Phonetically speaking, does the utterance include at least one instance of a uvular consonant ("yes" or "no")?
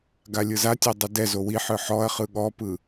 yes